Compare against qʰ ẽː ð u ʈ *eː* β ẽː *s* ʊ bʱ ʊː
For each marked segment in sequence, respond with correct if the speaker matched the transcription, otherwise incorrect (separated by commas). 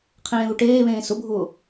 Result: correct, correct